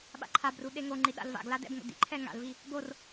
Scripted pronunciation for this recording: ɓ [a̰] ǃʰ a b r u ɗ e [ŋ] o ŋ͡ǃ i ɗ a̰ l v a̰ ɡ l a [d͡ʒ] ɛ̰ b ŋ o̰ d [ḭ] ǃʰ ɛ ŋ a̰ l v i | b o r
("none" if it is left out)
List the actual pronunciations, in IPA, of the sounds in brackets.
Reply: a̰, ŋ, d, ḭ

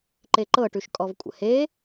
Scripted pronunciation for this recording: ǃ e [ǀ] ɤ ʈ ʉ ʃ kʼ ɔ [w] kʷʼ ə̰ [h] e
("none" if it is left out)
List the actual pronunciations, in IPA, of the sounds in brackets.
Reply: ǃ, v, h

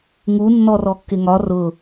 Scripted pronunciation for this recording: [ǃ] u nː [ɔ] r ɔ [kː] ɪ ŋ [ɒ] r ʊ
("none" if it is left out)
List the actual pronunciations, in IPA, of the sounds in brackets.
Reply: ŋ, ɔ, kː, ɒ

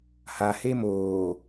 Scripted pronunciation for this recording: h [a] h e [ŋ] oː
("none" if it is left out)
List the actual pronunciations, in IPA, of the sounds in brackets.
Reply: a, m

